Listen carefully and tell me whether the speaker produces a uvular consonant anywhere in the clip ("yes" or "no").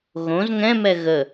no